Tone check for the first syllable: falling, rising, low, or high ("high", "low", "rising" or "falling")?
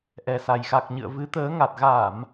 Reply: low